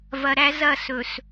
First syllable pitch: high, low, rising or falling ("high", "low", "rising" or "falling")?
low